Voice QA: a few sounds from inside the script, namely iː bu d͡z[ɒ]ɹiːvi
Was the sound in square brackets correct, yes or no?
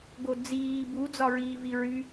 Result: yes